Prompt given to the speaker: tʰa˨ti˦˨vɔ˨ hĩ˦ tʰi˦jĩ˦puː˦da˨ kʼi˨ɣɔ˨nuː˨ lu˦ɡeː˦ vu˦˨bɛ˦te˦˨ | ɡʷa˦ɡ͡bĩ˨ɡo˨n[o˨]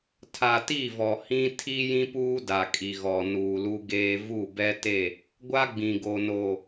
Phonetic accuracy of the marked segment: correct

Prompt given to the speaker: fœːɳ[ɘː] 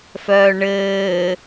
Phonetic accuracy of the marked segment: correct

